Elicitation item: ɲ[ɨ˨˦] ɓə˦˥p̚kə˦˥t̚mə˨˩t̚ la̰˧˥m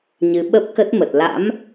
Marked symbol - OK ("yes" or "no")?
yes